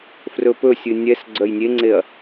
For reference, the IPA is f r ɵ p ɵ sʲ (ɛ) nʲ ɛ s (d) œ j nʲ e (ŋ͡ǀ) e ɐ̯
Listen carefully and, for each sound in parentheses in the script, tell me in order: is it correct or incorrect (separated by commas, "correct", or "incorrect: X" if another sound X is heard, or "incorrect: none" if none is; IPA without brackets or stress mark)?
incorrect: ɨ, incorrect: ɡ͡ǀ, correct